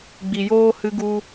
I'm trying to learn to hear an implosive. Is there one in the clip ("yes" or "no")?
no